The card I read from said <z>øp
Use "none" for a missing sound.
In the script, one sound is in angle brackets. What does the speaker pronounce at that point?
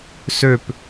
s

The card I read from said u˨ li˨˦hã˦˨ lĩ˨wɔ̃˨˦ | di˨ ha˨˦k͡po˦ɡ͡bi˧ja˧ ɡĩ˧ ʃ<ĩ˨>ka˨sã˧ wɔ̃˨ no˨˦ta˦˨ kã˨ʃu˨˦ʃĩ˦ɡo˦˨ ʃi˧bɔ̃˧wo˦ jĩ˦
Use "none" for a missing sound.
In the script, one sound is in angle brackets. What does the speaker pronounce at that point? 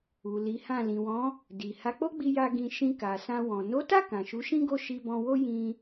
ĩ˧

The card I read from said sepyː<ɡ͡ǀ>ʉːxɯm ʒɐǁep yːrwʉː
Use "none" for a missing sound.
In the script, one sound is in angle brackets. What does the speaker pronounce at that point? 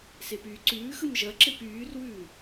ǀ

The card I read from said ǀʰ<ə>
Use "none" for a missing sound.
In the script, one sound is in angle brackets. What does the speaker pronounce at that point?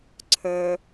ə˞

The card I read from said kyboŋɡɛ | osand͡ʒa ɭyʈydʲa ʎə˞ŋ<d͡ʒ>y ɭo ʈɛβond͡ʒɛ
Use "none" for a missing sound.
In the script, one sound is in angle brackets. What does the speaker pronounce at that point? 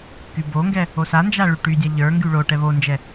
ɡ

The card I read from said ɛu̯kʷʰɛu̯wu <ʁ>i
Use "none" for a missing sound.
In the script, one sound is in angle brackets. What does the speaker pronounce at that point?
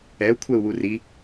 r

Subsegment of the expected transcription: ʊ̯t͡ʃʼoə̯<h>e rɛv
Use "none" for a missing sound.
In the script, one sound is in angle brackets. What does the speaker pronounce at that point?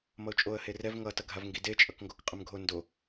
h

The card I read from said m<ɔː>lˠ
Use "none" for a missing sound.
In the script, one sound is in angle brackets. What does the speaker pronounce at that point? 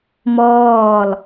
ɔː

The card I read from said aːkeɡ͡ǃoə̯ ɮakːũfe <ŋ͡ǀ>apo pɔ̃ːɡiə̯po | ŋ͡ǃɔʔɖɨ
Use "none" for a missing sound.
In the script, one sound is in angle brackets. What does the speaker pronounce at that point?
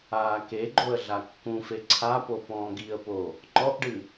ǀʰ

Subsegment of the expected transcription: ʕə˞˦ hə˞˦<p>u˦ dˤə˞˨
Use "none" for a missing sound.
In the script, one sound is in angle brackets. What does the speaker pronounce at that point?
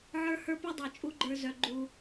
p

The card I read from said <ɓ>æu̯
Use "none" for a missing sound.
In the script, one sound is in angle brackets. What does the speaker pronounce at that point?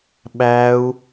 ɓ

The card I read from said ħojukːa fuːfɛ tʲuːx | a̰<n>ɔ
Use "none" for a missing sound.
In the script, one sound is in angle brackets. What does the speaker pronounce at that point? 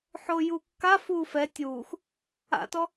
t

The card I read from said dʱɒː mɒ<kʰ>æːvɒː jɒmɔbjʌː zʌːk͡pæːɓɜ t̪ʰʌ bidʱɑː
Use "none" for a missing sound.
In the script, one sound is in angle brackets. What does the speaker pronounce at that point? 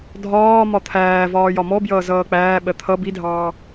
t̪ʰ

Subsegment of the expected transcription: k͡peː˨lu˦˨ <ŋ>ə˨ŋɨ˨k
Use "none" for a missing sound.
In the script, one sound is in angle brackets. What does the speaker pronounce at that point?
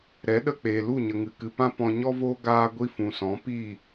ɲ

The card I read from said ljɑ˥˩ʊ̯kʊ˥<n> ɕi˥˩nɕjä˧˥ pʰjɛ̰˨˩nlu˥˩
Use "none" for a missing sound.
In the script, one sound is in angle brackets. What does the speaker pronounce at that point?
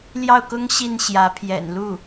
ŋ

